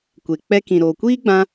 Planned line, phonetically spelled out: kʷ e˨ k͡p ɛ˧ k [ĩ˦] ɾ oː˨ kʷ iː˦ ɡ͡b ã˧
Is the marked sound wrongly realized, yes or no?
yes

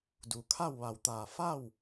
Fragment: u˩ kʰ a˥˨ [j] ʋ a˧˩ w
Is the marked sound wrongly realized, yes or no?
yes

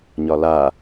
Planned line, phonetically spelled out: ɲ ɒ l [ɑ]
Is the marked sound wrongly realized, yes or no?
yes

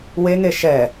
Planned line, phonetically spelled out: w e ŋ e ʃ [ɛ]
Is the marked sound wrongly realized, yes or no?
no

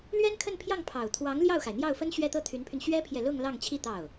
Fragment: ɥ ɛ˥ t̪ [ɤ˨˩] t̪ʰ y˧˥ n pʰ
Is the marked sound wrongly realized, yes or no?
yes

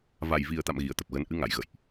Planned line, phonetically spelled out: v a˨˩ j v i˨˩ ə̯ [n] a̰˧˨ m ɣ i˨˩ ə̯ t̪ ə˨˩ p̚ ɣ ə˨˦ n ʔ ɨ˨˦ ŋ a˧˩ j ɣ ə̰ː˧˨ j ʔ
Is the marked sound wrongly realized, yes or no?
yes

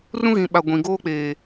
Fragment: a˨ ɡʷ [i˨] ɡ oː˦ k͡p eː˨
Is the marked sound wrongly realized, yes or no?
yes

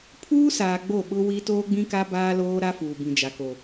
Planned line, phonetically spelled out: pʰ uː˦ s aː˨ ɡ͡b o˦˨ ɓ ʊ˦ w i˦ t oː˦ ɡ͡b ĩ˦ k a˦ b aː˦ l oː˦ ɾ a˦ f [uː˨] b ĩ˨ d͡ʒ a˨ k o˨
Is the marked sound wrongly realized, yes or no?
no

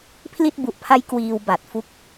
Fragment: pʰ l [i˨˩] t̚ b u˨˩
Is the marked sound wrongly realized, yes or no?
yes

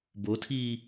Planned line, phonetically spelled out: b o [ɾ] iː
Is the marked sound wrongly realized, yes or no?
yes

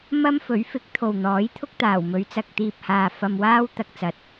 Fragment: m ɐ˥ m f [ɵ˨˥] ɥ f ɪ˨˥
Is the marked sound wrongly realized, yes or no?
no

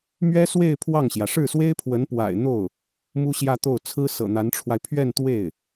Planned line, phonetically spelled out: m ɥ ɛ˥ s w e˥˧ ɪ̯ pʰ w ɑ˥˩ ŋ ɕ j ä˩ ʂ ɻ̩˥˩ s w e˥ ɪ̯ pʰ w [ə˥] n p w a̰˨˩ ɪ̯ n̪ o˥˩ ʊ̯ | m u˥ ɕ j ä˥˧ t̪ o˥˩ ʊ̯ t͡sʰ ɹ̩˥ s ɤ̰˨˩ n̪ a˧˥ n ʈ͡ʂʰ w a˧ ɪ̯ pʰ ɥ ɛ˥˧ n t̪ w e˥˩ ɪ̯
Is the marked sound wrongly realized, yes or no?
yes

